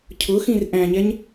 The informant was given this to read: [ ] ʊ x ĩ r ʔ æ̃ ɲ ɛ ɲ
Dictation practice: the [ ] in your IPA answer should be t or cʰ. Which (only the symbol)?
cʰ